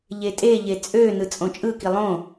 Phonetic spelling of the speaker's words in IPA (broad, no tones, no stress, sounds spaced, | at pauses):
ʎ e tʼ e ʎ e t͡sʼ ø n ɯ t͡sʼ õ t͡ʃʼ ɯ k i lˠ õ